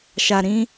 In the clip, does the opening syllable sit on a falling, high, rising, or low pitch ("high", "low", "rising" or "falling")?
low